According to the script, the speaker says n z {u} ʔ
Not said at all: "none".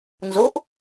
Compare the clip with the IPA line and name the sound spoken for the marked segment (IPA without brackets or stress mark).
o